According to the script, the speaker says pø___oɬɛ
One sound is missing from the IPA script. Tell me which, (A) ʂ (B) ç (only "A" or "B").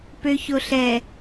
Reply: B